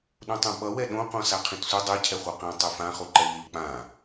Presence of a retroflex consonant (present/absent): absent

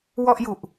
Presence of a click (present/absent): absent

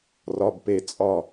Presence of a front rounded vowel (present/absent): absent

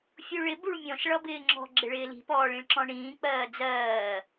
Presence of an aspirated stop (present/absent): absent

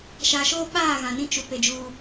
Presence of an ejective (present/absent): absent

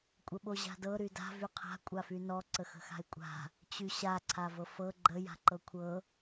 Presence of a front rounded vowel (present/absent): present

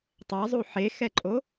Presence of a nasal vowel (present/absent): absent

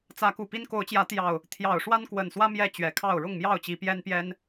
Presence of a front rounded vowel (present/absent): absent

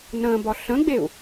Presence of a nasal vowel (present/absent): present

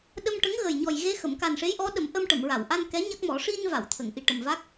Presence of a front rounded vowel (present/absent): absent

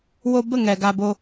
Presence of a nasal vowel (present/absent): absent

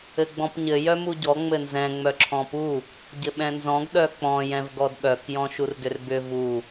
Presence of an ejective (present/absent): absent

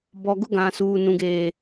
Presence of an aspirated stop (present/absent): absent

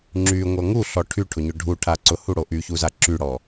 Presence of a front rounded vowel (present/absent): present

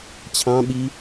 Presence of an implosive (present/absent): present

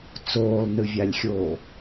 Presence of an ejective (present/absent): absent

